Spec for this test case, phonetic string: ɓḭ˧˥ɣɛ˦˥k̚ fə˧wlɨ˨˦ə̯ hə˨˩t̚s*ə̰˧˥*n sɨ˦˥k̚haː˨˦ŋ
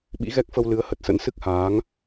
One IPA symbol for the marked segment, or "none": ə̰˧˥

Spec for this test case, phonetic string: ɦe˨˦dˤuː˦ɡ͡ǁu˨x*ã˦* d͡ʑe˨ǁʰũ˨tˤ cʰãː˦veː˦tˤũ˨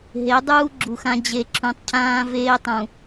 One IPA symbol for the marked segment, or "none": ã˦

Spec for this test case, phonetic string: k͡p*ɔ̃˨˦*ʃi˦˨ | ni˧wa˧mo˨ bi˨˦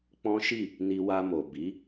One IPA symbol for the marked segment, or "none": ɔ̃˦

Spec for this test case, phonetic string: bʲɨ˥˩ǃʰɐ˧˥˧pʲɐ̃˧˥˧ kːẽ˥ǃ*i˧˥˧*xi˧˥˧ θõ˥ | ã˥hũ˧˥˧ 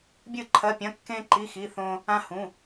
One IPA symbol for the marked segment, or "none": i˧˥˧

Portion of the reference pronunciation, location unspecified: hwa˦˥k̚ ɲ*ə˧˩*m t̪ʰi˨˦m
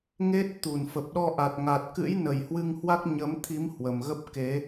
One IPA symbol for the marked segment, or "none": ə˨˦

